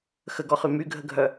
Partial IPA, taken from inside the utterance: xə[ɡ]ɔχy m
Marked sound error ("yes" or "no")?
no